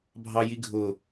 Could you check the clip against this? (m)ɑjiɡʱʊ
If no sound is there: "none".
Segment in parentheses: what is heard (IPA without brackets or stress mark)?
bʱ